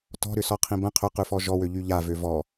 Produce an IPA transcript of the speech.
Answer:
t ɔ̤ ɾ ʏ s ɔ qʰ ĩ b ə̃ qʰ ʏ q ʉ f ɔ ʒ ɔ w ø ʎ y ʎ a v ø v ɔ

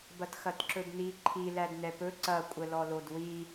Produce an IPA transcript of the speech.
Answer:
b ɐ t x ɐ t ǁ ɵ d n i ǃʰ i l æ d n ɛ p ɵ ǀ ɐ kʷʼ ə l ɔ l o d w i

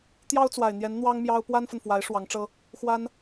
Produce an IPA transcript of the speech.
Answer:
t̪ j ɑ˥ ʊ̯ t͡s w a˨˩ ɪ̯ n̪ j ɛ˧˥ n n̪ w ɑ˥ ŋ m j ɑ˥ ʊ̯ p w a˥ n f ə˨ n f w a˧˥ ɪ̯ ʂ w ɑ˧˥ ŋ ʈ͡ʂ ɤ˥ | x w a˥ n

